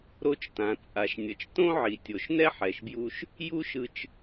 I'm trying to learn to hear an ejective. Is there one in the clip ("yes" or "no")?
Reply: yes